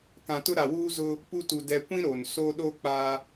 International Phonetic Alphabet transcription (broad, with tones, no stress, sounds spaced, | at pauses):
k ã˨ t ʊ˦ ɾ a˨ w uː˦ z ʊ˦ | p u˦ t u˨ d ɛ˨ kʷ ĩ˦ ɾ o˨ n s o˦ ɗ o˦ k͡p a˦